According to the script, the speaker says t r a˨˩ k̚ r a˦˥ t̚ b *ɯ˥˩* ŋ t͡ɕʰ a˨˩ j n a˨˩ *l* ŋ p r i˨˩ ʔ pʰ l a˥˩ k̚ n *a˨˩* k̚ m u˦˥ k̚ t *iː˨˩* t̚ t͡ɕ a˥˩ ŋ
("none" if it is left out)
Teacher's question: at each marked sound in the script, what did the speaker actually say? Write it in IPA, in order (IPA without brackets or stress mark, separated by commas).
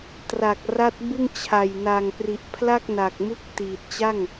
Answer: ɯ˥˩, none, a˨˩, iː˨˩